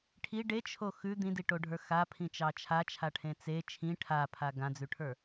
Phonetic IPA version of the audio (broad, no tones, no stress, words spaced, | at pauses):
ʈʰi ɖet͡ʃʰo xʉ d̪ĩdiʈoɖʱə˞ xapʰĩt͡ʃɑ t͡ʃʰat͡ʃʰaʈʰẽ t͡se t͡ʃʰĩ ʈʰapʰa ɡãd͡zʉʈʰə˞